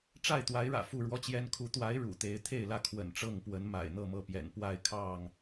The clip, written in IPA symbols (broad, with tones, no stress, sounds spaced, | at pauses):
ʈ͡ʂ a˥˨ ɪ̯ t̪ w a˨˦ ɪ̯ ɻ ä̰˨˩ f u˥˨ ɻ w ɔ˦ t͡ɕ j ɛ˦ n kʰ u˨˦ t̪ w a˨˦ ɪ̯ ɻ ṵ˨˩ t̪ e˨˦ ɪ̯ t̪ʰ e˥˨ ɪ̯ l ä˥˨ kʰ w ə̰˨˩ n ʈ͡ʂ ɤ˥˨ ŋ p w ə˨˦ n m a̰˨˩ ɪ̯ n̪ ɤ˥˨ m ɤ˥˨ p j ɛ̰˨˩ n p w a˥˨ ɪ̯ kʰ ɑ˥˨ ŋ